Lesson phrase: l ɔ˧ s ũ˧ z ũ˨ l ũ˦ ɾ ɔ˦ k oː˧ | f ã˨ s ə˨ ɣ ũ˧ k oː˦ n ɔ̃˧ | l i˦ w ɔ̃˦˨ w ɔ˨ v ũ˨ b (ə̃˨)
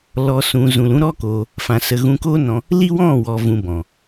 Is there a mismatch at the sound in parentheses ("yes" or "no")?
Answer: yes